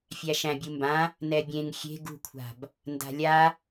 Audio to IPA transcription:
fʲ æ ʃ æ̃ bʲ u m b ã | n ɛ bʲ ẽ ŋ xʲ e̤ ɡ ṳ kʷʰ a̤ b | n d a̤ lʲ a

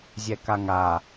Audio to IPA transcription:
zʲ ɛ k a ŋ a

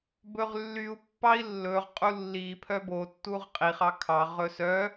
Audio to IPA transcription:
b ɵ ʁ lː y u̯ pː ɑ i̯ lː ɵ ʁ qʼ u lː i pʰ œ b o tː u ʁ qʼ i χ ɑ kʰ ɑ ʁ ɵ s œ

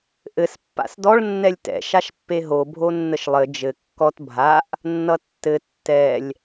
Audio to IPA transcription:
ʔ ɘ s pː a̰ s d ɔ ɭ nː ɛ lʲ t ɛ̰ ʃ a ʃ pː e ɦ o bʱ o nː ə ʃ lˠ ɘ d͡ʒ ɘ kː ɔ t bʱ a ʔ | nː ʌ tː ɘ tː ɛ lʲ

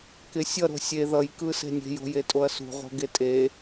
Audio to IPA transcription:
k ɪ sʲ ʌ ɾ o̤ sʲ e ð ʌ j k ɯ s e̤ nʲ e̤ j o̤ j e tʼ o ɐ̯ s ṳ ʁ o̤ ɡ e tʼ e

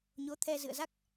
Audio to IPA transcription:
ɲ o˨˦ t̪ʰ ɛ˧ z ɨ̰˧˨ ə̯ z a˦˥ k̚

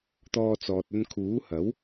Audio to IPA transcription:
t̪ ɔː˧ t͡s ɔː˨ t̚ ɵ˧ n kʰ uː˨˥ h ɐ˨˥ w

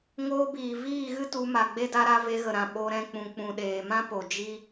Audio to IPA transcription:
ŋ oː˧ b iː˨ v iː˦˨ ɣ ɨ˦ t u˧ m a˨ ɡ͡b e˦ d a˦ ɾ a˦ v e˧ ɣ ə˨ ɾ ã˨ ɓ o˧ ɾ ɛ̃˧ k͡p ũ˨ k͡p ũ˨ ɗ eː˨ m ã˦ p o˨ d͡ʒ i˦

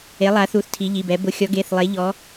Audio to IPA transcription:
e˨˦ lˠ a˨˦ θ u˨˦ θ tʰ i˨˦ ʎ i˩˧˩ b ɛ˨˦ b ʊ˨˦ xʲ ɔ˨˦ ɡ e˩˧˩ θ lˠ e˨˦ ʎ ɔ˨˦

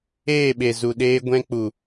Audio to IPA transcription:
eː˦˨ ɓ e˨ z u˨ ɗ eː˧ ɡʷ ɛ̃˧ k͡p u˨

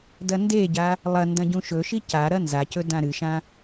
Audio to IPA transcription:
d ɐ n d e ɟ a | lˠ ɐ n d ɐ̃ ɟ ũ ʃ ɵ ʃ i c a ɾ ɐ n z a c ɵ d ã ɾ ɨ ʃ ã

